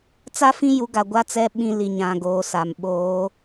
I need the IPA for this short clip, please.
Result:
t͡s a˦ f ĩ˦ j u˨˦ ɡ a˨ ɡʷ a˦ t͡s ɛ˦ ɓ ĩ˦ l i˨ ɲ ã˨ ɡ oː˨ s a˨ m ɓ oː˨˦

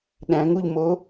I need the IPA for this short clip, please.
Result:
ɗ æ̃ ŋ u ʎ m o

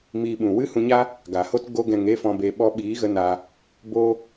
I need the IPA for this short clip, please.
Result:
m iː˧ ɓ ũ˨ w ɨ˦ h ũ˧ ɲ a˦ | ɡ a˨ h o˦ t ɡ o˧ ɡ ɛ̃˨ ŋ e˧ f ɔ̃˨ b e˨ ɓ ɔ˧ ɓ iː˨˦ ɣ ə˧ n a˧ | b o˦

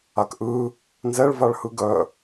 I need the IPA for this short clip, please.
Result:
a k ʔ ɯ | n z ɛ ɭ v a ɭ h ɯ ɡ œ

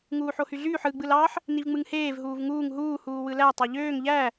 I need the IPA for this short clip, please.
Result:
ŋ uː ħ o h y ɮ yː ħ ɯ ɡ͡b ɯ l ɑ ħ | n i v ŋ͡m ɯ ŋ h eː v ɦ uː v ŋ uː ŋ ɦ uː h uː w ɯ l æ tˤ ɑ ʎ øː ŋ ʎ æ

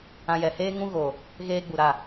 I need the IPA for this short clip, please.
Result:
ã˧ j ɛ˨ h eː˦ ŋ ũ˦ ɣ o˨ | ɣ eː˦ ɡ͡b u˨ ɾ a˦˨

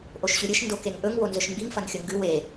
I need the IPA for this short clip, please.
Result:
ʔ o ʃ ɕ ʉ ɾʲ ɨ ʃ n d o k e ŋ ʔ ɵ ŋ w o n z ɵ ʃ m b i ŋ f ɐ n xʲ ɵ ŋ ɡ ʉ w e

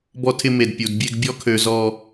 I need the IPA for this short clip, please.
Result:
b ɔ˦ tʰ ɪ˦ m e˨ d pʲ u˨ d bʲ e˦ ɡ bʲ ɔ˦ kʰ ø˨ z ɔ˨

